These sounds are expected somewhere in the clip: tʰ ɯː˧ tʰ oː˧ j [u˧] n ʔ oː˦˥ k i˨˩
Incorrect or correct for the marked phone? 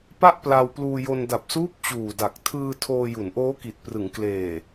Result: incorrect: u˩˦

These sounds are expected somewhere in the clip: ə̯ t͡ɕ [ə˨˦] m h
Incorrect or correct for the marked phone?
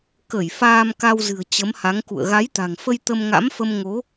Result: correct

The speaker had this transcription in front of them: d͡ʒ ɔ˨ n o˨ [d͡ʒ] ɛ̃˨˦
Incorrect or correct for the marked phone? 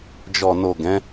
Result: incorrect: ɡ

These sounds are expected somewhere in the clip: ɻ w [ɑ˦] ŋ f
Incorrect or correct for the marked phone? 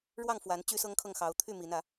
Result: incorrect: ɑ˥˨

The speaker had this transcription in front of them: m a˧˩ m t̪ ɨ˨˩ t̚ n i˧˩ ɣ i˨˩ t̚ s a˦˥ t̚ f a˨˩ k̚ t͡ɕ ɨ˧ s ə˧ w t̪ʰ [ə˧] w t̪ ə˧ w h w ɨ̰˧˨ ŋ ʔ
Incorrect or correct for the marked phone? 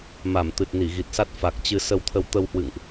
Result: correct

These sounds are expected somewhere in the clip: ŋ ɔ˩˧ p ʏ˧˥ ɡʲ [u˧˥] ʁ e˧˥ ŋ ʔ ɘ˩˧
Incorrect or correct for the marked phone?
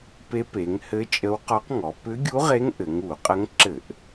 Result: correct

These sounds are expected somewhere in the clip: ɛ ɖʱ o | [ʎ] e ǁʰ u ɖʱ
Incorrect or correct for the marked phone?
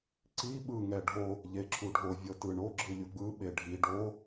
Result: correct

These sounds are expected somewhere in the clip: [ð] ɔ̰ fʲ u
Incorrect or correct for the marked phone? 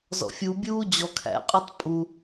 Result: incorrect: z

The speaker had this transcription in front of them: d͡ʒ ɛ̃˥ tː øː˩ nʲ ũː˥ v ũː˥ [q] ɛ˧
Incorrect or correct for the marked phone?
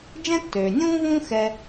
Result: incorrect: x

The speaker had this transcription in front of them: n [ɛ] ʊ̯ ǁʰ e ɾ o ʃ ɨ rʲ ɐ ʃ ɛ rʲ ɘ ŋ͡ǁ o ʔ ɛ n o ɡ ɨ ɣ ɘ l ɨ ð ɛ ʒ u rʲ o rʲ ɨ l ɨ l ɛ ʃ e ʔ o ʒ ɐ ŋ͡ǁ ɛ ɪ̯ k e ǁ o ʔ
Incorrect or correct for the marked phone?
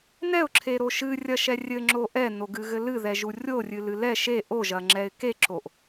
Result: correct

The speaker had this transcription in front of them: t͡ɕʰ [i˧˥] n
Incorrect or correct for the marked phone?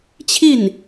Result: incorrect: i˥˩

